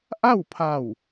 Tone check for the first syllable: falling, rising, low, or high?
falling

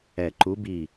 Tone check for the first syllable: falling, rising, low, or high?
low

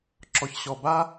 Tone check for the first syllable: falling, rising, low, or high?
low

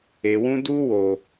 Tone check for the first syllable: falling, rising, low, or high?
low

